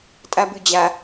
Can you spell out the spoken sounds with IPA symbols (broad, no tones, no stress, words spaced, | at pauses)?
tʼabʉd͡ʑa